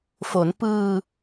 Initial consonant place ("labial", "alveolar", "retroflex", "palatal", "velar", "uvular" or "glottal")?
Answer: labial